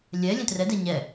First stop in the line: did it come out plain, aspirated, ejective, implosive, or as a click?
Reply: plain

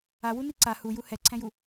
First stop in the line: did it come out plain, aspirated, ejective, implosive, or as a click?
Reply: click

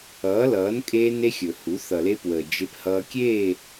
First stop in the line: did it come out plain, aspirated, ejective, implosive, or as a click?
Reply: ejective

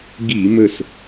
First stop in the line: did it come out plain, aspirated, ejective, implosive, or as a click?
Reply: plain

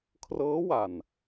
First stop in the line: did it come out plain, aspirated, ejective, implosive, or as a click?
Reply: aspirated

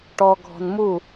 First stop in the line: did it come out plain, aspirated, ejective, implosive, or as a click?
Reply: plain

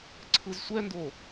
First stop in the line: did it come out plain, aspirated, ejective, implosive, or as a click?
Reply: click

